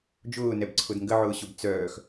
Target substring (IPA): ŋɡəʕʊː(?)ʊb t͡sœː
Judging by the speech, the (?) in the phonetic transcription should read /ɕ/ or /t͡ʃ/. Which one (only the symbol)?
ɕ